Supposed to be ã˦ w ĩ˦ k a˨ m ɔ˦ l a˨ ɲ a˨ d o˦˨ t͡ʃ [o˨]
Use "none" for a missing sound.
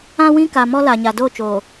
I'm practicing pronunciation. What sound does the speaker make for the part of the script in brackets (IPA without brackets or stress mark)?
oː˨